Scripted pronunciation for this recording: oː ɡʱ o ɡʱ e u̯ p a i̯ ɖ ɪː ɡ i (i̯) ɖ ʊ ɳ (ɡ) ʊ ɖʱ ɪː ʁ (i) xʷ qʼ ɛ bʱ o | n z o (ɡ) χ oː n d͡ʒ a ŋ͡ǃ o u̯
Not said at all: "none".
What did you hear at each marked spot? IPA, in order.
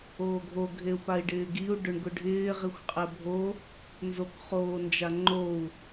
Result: u̯, ɡ, i, k

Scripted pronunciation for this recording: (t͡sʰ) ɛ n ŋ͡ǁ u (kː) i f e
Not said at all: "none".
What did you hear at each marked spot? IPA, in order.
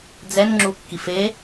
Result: d͡z, kː

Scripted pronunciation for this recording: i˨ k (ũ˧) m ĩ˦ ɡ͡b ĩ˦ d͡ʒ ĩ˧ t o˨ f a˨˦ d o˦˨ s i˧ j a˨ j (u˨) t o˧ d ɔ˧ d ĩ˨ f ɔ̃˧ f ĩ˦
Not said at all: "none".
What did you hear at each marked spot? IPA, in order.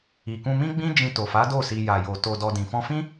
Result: ũ˧, o˨

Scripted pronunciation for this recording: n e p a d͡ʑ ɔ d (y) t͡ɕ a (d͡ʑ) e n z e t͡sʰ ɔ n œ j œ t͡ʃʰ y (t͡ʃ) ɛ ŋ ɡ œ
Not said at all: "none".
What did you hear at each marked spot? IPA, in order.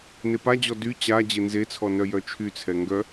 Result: y, d͡ʑ, t͡sʰ

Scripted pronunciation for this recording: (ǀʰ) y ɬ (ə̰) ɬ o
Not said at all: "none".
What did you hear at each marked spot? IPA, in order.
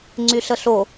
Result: ŋ͡ǀ, ə

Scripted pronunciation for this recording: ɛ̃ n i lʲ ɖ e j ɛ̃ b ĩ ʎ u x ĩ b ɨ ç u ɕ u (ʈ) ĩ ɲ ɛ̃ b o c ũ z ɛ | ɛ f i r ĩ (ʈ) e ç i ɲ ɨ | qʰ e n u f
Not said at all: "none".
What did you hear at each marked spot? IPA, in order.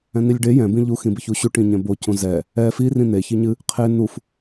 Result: ʈ, n̪

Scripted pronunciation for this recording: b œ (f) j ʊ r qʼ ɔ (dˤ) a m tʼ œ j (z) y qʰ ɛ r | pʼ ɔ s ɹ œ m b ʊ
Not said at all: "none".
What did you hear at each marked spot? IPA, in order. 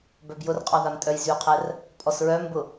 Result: b, ð, z

